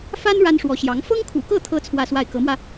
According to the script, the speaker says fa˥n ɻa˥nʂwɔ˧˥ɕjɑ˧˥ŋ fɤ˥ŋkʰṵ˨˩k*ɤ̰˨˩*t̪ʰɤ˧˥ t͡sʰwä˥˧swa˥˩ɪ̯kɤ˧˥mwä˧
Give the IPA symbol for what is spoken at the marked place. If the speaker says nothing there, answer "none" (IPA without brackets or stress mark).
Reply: ɤ˥˩